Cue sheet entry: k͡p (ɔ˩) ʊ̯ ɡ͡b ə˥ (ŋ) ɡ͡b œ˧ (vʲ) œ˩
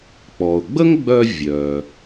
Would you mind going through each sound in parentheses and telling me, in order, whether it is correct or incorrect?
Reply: correct, correct, correct

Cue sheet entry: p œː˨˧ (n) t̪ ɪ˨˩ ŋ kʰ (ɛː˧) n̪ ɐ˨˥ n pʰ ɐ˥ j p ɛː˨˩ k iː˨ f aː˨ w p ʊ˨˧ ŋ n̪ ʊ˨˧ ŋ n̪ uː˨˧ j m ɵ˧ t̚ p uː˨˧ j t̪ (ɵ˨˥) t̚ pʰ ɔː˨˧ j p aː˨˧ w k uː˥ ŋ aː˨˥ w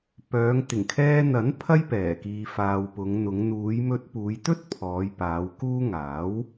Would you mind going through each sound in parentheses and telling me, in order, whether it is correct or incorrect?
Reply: incorrect: ŋ, correct, incorrect: ɵ˥

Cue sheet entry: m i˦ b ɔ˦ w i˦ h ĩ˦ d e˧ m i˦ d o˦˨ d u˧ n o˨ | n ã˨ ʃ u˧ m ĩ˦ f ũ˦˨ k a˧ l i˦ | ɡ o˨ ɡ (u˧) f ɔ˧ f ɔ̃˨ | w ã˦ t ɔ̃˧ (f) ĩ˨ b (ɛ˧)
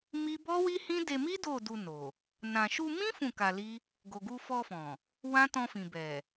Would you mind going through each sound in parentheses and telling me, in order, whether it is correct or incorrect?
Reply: correct, correct, incorrect: ɛ˨

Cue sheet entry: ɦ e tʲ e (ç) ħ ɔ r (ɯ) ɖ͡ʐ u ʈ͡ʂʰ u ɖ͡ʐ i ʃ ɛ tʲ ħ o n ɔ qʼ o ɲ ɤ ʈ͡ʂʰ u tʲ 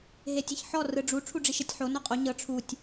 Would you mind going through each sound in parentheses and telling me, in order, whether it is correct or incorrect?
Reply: correct, correct

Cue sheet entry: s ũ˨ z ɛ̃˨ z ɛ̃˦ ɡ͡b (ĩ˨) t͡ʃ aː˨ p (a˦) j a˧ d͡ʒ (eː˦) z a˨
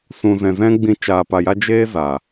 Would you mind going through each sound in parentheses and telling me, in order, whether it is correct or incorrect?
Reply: incorrect: ĩ˧, incorrect: a˨, correct

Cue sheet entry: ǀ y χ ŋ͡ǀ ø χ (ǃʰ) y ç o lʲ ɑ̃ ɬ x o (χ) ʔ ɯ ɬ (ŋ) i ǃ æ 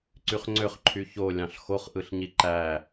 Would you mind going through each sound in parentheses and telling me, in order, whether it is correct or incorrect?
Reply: correct, correct, incorrect: ɲ

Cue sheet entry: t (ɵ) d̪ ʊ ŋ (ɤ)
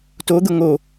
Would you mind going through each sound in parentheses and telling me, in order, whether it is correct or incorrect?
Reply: incorrect: o, incorrect: o

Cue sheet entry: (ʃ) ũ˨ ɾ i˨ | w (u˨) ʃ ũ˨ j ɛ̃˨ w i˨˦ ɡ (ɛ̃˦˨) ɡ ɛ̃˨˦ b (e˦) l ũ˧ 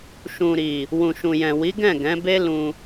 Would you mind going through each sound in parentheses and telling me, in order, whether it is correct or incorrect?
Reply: correct, incorrect: ũ˨, correct, correct

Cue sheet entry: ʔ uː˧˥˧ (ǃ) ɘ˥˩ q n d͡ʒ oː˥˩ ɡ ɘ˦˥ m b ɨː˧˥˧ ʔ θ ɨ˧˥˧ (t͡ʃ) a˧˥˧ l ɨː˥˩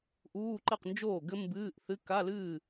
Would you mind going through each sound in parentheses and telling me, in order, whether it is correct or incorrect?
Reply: correct, incorrect: k

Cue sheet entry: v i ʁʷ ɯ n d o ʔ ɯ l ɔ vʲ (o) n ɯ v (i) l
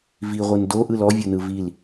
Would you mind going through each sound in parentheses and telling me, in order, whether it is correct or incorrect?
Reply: correct, correct

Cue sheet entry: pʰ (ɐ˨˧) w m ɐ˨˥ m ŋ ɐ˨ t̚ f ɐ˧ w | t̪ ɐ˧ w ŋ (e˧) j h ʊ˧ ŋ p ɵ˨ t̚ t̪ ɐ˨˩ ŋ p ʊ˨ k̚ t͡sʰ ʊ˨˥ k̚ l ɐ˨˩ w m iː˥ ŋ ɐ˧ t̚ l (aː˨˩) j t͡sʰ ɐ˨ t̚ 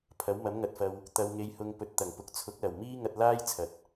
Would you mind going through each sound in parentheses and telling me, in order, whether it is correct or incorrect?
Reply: incorrect: ɐ˨˥, correct, incorrect: aː˥

